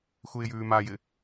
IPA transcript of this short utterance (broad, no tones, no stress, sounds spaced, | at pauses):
x u ɪ̯ j ʉː m a j ɪ